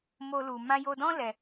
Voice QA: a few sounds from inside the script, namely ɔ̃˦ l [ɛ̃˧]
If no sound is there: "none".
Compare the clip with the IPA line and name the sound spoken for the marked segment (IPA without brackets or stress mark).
ɛ˧